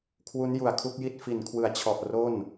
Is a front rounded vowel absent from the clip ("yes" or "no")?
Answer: yes